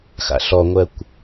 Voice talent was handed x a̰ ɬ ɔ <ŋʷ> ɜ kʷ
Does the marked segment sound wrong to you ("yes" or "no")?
no